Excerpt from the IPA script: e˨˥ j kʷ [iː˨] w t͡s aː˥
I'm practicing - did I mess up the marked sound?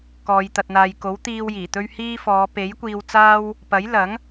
yes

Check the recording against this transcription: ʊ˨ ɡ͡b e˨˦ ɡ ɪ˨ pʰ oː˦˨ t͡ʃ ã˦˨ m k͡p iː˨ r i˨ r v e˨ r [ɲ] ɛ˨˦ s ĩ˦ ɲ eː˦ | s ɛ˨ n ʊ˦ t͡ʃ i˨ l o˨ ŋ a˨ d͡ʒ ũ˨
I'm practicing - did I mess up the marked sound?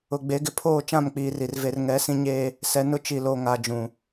yes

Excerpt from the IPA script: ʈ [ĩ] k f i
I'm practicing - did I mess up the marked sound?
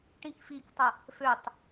no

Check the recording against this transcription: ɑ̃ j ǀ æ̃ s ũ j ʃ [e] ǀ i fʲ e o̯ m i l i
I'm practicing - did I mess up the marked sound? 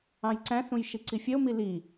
yes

